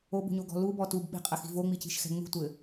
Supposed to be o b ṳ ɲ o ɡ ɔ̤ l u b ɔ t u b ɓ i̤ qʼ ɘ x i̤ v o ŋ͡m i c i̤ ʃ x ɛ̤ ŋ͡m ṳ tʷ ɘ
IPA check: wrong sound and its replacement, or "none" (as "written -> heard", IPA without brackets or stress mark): none